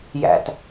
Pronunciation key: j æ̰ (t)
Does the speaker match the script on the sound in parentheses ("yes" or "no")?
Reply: yes